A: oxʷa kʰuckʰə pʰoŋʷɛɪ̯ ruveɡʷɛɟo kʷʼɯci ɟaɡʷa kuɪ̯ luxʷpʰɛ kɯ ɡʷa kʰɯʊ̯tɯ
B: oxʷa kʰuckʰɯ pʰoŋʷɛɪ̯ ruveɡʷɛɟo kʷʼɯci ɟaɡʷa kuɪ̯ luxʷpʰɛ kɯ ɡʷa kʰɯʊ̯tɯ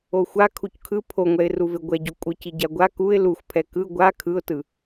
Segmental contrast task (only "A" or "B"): B